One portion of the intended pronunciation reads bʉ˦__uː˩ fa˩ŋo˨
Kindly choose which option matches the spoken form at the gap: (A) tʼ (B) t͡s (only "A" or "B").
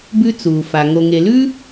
B